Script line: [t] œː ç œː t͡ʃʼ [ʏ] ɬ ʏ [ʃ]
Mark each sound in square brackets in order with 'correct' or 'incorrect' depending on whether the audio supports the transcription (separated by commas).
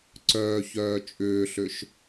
incorrect, incorrect, correct